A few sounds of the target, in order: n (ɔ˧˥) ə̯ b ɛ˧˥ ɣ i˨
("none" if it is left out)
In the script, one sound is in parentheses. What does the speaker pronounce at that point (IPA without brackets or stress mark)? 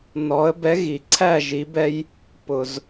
ɔ˧˥